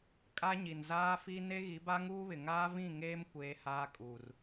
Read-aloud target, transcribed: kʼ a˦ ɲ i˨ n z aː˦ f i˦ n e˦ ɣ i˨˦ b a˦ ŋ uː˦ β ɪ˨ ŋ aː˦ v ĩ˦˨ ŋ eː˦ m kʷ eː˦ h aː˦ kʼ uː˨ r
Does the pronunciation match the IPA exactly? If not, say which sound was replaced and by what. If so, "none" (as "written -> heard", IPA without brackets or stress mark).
none